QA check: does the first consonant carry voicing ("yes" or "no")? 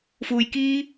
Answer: no